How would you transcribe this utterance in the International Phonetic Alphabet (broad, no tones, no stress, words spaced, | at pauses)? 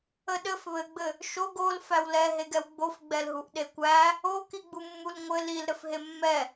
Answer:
əɗɘf βɘɡ͡bɘ | ʃoɡ ol fæwlɛ ɦeɡɛwɡ͡bofɡ͡bɛl ɦuʔɗekʷæ | okiɡ͡bumːul ŋʷɘ lil ɾɘfɦemːɛ